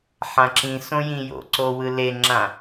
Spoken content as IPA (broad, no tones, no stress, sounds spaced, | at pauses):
ħ ã ǁ ĩ s õ j ĩ j o̰ ǀ o w ɯ l e ŋ͡ǁ ã